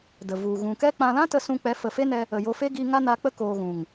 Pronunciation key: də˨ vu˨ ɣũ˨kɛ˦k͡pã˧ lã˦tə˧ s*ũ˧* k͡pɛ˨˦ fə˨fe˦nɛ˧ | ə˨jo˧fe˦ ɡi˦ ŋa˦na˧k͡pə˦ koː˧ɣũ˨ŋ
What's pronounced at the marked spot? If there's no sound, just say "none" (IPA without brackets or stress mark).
ũ˧